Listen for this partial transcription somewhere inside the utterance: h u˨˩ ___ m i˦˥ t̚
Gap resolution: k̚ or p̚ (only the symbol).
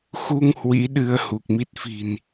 k̚